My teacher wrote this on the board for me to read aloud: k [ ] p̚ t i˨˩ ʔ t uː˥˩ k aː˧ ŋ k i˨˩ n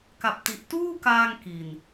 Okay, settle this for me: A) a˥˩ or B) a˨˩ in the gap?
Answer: B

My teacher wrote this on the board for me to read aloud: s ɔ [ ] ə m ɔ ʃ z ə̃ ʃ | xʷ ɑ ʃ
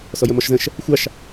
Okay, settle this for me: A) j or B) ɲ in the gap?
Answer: A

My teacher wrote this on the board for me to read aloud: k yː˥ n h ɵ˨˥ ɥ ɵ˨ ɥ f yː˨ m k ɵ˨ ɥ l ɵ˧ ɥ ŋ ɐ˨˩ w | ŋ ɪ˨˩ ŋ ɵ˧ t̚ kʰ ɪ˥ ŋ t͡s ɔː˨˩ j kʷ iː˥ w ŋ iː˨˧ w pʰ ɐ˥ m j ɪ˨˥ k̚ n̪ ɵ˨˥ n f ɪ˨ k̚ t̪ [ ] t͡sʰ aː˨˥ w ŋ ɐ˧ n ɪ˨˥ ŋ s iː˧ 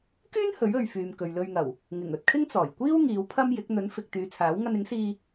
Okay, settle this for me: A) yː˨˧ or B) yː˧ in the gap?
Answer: A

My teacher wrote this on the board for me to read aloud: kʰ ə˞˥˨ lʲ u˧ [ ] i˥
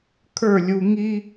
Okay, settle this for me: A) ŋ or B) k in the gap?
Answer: A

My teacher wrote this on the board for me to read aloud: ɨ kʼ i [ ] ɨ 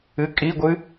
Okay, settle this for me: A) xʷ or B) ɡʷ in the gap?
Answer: B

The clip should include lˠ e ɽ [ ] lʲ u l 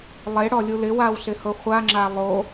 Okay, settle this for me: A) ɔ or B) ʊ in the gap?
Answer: A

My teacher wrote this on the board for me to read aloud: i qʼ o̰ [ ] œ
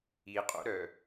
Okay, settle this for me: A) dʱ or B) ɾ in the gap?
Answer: B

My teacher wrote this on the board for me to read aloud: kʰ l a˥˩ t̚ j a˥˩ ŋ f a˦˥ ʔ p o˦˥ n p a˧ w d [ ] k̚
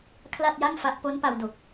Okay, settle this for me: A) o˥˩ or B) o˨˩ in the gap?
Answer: B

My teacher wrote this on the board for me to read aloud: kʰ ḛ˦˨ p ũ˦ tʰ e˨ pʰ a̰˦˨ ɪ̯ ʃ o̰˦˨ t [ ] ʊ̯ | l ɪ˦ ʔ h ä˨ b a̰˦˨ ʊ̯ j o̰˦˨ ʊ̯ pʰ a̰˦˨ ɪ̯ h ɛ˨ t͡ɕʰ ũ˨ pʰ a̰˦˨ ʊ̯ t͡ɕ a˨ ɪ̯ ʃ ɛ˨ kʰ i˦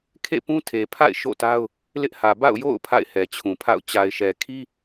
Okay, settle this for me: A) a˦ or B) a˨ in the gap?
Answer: A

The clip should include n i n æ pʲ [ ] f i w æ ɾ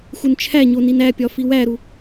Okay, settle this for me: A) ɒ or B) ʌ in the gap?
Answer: A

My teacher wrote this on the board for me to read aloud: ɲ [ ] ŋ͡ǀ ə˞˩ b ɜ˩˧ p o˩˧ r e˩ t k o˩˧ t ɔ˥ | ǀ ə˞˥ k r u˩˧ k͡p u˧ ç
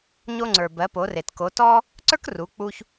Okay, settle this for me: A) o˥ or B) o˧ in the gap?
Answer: B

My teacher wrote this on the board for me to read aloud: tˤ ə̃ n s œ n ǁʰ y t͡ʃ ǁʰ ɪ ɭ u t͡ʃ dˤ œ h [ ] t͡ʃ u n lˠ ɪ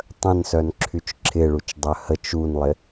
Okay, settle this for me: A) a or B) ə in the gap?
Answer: B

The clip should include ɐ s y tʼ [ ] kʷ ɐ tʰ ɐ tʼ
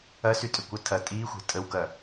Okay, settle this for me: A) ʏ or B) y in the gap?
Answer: A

